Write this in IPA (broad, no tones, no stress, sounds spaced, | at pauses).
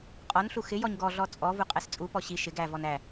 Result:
qʼ ɔ n ɬ u x ɪ j ɔ ɲ ɡ ɔ ɮ ɔ t͡sʼ ɔ v u qʼ ɛ s t͡sʼ u p ɔ ɕ i ʃ ɪ ɡ æ v ɔ n æ